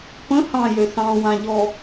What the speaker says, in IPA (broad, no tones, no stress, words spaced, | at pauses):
pə̃ hɑ̃jø sɑ̃wãʎɔ